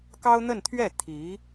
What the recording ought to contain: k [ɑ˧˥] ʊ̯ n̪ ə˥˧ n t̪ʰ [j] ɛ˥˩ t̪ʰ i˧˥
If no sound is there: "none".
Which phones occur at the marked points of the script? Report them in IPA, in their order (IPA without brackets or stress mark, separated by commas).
ɑ˥, ɥ